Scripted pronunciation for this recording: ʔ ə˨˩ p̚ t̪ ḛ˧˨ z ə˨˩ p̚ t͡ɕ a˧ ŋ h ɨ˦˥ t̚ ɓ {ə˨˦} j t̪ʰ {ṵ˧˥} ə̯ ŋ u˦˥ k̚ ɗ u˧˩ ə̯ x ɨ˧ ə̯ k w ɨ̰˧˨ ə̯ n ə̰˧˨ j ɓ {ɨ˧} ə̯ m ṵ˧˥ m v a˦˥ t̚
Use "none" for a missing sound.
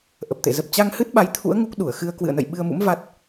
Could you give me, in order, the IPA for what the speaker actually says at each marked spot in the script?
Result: a˨˦, ṵ˧˥, ɨ˧

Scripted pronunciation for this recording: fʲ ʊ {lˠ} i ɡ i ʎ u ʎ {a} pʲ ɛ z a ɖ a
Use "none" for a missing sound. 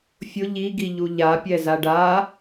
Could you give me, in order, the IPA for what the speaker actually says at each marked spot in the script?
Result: ʎ, a

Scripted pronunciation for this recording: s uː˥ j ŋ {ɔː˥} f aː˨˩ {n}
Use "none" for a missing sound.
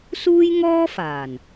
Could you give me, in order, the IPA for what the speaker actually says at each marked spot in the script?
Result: ɔː˥, n

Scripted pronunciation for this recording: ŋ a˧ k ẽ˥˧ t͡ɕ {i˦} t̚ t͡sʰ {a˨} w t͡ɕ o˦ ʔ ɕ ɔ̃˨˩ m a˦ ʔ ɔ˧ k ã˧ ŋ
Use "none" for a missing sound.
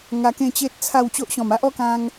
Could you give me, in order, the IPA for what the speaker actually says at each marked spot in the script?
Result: e˦, a˥˧

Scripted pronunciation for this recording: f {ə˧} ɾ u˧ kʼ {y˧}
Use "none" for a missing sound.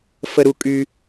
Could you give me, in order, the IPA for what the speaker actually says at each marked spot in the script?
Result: ə˧, y˧

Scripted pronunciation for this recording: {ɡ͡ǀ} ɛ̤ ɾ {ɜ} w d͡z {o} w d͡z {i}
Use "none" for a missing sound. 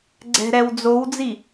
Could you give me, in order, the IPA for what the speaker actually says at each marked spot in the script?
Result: ɡ͡ǀ, ɛ, o, i

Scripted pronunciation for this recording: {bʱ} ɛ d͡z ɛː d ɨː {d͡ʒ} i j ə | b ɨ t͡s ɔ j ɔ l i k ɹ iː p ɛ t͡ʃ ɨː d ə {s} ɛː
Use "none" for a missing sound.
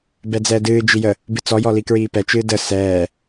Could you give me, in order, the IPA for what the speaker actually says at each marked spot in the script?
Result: b, d͡ʒ, s

